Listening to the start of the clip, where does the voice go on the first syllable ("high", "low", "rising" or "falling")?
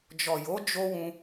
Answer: low